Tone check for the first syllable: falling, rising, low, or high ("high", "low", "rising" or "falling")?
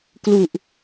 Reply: low